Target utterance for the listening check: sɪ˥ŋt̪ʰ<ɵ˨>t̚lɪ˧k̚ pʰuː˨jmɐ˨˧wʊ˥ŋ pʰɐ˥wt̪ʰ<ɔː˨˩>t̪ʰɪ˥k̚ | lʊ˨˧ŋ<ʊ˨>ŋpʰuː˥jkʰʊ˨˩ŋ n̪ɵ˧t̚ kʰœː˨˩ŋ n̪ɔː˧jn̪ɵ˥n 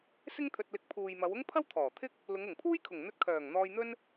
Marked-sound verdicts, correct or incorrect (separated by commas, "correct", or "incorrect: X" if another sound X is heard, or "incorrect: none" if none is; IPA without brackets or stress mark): incorrect: ɵ˧, correct, incorrect: ʊ˨˩